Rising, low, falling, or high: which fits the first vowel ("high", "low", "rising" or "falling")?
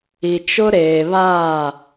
low